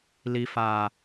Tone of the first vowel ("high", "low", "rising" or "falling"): low